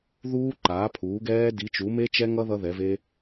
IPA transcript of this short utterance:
ð uː˦˥ ǃ aː˩˥ pʰ uː˩˥ ɡ ɛː˦˥ d i˩˥ t͡ʃ u˩˥ m e˦˥ t͡ʃ ɛ˦˥ ŋ ʌ˦˥ ð ʌ˦˥ ð ɛ˩˥ v e˦˥

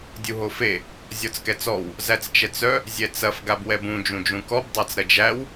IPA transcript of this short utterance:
dʲ u ɦ o f e | zʲ ɔ t͡s k ɛ t͡s ɔ w | z æ t͡s t͡ʃ ɛ t͡s œ | zʲ ɛ t͡s ɐ f ɡ a b w ɛ b ũ d͡ʒ ũ d͡ʒ ũ k ɔ b dˤ a t͡s ɾ ɐ d͡ʒ æ w

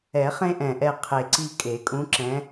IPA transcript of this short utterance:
ɛ˨˩˦ χ ẽ˦ ʔ ɛ̃˨˩ ʔ ɛ˦˨ qʰ e˨˩ ǀ i˦˨ kʼ e˨˩˦ kʼ ũ˨˦ ǁ ɛ̃˨˦

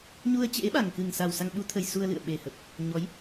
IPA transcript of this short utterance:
ɲ u˧ ə̯ t͡ɕ ḛ˧˥ ɓ a˨˩ ŋ k ɨ˨˩ ŋ s a˨˩ w s a˧ ŋ ɓ u˨˦ t̪ʰ ə˨˩ j s u˧ ə̯ l ɨ̰˧˨ ə̯ ɓ e˨˩ h ə˨˩ p̚ | ɲ ɔ˨˦ j

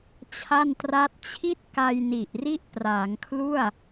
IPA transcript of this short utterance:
t͡ɕʰ a˥˩ n t r a˦˥ t̚ t͡ɕʰ i˥˩ t̚ k a˧ j n i˨˩ ʔ r i˥˩ ʔ p r aː˩˦ ŋ kʰ l u˥˩ a̯

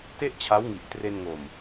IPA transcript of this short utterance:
t e˥˩ ʔ t͡ɕʰ a˦˥ w ŋ i˨˩ ʔ t r e˧ n ŋ o˨˩ m

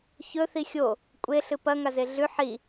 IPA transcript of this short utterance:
ç ɵ θ i xʲ o | kʷʼ e ɬ ɨ p ɐ ŋ a z e ɮ ʉ ħ i

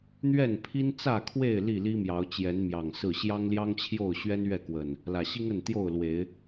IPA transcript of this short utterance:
n̪ ɥ ɛ˥˨ n pʰ i˦ n t͡s ä˥˨ kʰ w e˥˨ ɪ̯ l i˥˨ l i˦ m j ɑ˨˦ ʊ̯ t͡ɕ j ɛ˨˦ n m j ɑ˨˩ ŋ s ɹ̩˥˨ ɕ j ɑ˦ ŋ l j ɑ˦ ŋ t͡ɕʰ j o˥˨ ʊ̯ ɕ ɥ ɛ˦ n ɥ ɛ˥˨ k w ə˨˩ n | l ä˨˩ ɕ i˦ ŋ ə˥˨ n t̪ j o˥˨ ʊ̯ l w e˨˦ ɪ̯

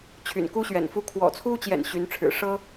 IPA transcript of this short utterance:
t͡ɕʰ y̰˨˩ n k u˥ ɕ ɥ ɛ̰˨˩ n f u˥˩ kʰ w ɔ̰˨˩ t͡sʰ u˥ t͡ɕ j ɛ̰˨˩ n ɕ y˧˥ n ʈ͡ʂʰ ɻ̩˨˩ ʂ ɤ˥

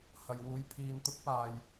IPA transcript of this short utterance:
h ɐ˨ j w uː˧ j pʰ iː˧ n t̪ ʊ˥ k̚ p aː˨ j

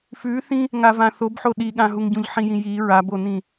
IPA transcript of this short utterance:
f ʉ θ ĩ | ŋ a v ã θ o b ħ o ɗ i ɠ ã ɦ u ŋ ɟ ũ ʎ ħ ĩ j ĩ j i ɹ a b o n ĩ

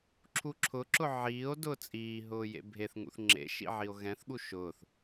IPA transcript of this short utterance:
ǁʰ u ǁʰ ʊ ǁ ʊ ʕ iː o̯ d ʊː t͡sʼ iː ɦ ʊː j ḛ bʱ e θ ŋ ṵ θ ŋ͡ǁ ḛ ʃ ḭ ʕ i o̯ ɣ ɛ̃ θ ɠ u ʃ ʊː θ

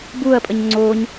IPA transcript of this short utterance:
b u ɐ̯ pʼ ə ɲ ŋ͡ǀ o ɲ

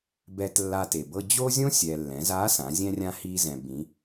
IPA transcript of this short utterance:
b ɛ˧ t lː a˧ t e˩ b ɤ˧ d͡ʑ o˥ zʲ õ˥ sʲ ɛ˩ lː ɛ̃˩˧ z a˧˥ s ã˩˧ zʲ ɛ̃˧ rʲ ã˧ h i˧ z ɛ̃˩ b ĩ˩˧

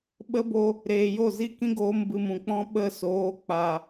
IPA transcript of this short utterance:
ɓ ə˦ b o˧ | ɾ eː˨ j o˦˨ z i˦ k ĩ˦ ɡ oː˧ m b ɨ˨ m ũ˨ k͡p ɔ̃˦ ɓ ə˦˨ s oː˨˦ k͡p a˨

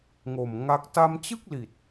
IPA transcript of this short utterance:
ŋ o˨˩ m ŋ a˦˥ k̚ t a˧ m t͡ɕ ɯ˥˩ k̚ l i˨˩ t̚

